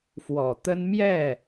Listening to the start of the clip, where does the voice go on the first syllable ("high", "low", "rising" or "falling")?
low